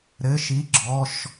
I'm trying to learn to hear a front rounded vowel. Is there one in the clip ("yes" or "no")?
no